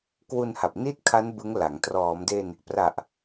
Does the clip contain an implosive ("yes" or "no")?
no